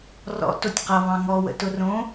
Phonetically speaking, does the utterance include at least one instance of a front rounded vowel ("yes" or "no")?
no